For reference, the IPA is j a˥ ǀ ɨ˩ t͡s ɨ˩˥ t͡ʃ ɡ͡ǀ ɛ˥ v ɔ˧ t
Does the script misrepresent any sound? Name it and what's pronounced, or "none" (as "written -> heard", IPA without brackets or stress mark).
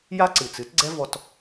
t͡ʃ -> t